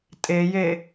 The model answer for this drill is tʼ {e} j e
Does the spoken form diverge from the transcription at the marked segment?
no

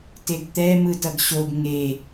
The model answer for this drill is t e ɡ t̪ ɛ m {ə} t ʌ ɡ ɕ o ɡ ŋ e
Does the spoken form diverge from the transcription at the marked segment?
yes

